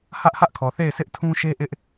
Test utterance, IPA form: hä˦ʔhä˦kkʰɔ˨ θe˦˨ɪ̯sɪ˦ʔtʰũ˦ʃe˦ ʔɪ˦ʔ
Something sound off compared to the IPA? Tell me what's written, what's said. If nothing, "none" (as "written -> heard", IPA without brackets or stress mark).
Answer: k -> ʔ